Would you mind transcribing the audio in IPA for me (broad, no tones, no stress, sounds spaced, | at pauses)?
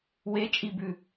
w e t͡ʃʼ i b ʉ